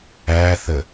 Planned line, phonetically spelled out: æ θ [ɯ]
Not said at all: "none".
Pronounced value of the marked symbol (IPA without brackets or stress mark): ə